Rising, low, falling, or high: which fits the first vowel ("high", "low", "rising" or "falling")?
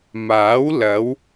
rising